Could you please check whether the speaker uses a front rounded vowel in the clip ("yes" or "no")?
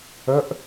yes